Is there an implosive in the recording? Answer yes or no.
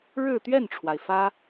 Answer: no